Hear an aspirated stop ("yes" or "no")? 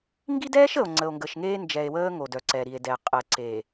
no